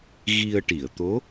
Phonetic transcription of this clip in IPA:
ɣi˧ə̯ʈi˨˩˨ə̯t̪o˧˥

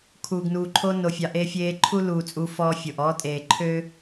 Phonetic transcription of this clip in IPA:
kʰuː˨ɡnuː˨ǃʰo˦ no˨fʲɑ˨ ʔeː˦fʲeː˦ ǃʰu˦luː˨ t͡sʼu˦fɔː˦fʲo˨ʔ ɔː˦tʼeː˨ǃʰøː˦

